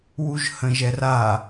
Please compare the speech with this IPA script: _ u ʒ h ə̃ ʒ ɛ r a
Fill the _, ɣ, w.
w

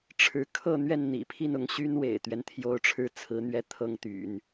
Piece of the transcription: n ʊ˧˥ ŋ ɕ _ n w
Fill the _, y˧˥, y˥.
y˥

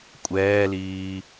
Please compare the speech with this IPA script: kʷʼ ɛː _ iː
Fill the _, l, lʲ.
l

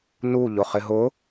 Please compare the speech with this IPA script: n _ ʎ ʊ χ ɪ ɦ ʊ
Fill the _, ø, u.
u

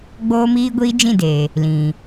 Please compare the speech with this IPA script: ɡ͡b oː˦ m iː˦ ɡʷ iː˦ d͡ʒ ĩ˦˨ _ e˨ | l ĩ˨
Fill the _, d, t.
d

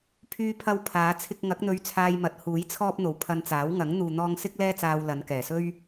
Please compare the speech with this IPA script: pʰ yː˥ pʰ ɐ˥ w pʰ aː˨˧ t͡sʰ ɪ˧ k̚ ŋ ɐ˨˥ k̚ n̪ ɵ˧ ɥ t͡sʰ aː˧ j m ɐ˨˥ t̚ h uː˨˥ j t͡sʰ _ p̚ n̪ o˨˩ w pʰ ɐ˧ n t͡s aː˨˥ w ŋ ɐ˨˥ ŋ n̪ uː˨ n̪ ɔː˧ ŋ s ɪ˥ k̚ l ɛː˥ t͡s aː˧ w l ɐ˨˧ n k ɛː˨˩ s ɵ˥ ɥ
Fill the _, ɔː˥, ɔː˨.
ɔː˥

